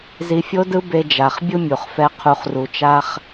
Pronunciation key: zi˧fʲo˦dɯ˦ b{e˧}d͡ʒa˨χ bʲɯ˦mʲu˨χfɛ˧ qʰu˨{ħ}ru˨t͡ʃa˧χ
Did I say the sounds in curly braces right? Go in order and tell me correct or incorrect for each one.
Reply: correct, incorrect: χ

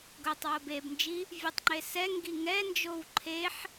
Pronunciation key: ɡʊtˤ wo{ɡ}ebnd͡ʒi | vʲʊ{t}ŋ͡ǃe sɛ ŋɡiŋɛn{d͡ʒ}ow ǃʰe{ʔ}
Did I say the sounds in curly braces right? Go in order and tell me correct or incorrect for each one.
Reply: incorrect: b, incorrect: tˤ, correct, incorrect: ħ

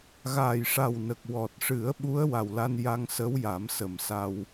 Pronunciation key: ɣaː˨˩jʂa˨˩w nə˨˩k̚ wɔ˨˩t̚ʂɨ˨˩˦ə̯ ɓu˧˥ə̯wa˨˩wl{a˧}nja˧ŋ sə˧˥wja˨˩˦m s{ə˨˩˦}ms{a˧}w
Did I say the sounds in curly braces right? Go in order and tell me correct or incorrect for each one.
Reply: correct, incorrect: ə˨˩, correct

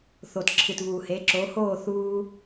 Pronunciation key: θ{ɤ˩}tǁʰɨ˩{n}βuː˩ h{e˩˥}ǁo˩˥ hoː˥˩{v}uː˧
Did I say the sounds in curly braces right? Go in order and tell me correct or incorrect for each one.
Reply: incorrect: o˩, incorrect: t, correct, incorrect: θ

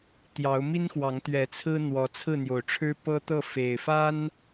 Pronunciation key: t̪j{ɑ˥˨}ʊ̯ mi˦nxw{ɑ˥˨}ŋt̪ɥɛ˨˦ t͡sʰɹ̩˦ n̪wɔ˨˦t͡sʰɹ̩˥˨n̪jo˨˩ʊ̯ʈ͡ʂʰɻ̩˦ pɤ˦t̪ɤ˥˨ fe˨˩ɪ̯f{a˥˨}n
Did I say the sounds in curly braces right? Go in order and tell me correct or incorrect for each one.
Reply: incorrect: ɑ˨˦, incorrect: ɑ˨˦, incorrect: a˦

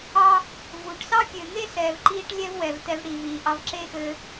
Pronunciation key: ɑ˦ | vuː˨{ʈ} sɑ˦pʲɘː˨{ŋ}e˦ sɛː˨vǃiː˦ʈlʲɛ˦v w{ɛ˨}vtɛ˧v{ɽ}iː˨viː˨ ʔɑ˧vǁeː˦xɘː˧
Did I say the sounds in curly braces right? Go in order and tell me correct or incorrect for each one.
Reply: correct, correct, correct, correct

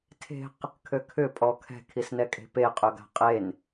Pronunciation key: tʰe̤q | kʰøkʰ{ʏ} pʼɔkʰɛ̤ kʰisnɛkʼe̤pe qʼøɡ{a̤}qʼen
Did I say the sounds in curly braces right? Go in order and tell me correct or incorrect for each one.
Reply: correct, correct

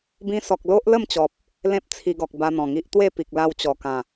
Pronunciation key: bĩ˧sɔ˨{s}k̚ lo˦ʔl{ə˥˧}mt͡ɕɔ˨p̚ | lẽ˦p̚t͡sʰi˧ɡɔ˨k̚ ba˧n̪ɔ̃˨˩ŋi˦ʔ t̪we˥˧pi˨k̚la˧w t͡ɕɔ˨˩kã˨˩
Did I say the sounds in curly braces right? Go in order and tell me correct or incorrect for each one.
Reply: incorrect: none, correct

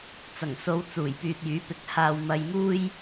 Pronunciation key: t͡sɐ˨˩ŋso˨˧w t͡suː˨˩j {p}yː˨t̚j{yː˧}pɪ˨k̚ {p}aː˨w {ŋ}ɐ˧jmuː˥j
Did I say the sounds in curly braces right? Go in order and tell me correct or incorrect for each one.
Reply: correct, incorrect: yː˨˥, incorrect: h, incorrect: m

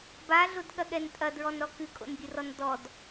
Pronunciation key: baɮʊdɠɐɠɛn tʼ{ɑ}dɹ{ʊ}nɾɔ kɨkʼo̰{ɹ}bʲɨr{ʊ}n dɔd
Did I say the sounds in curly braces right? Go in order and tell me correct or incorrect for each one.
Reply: incorrect: ɐ, incorrect: ɔ, incorrect: n, incorrect: ɔ

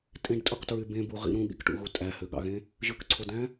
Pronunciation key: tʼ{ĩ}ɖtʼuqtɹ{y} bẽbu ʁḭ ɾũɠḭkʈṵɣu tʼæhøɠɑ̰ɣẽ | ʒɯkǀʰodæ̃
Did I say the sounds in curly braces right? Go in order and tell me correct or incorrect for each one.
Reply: incorrect: ẽ, correct

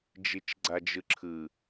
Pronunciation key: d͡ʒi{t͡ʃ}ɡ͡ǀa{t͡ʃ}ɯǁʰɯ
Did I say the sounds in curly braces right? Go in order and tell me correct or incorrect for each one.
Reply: correct, incorrect: d͡ʒ

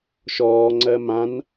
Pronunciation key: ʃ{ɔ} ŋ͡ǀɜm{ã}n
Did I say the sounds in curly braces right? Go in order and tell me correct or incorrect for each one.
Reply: incorrect: ɔː, correct

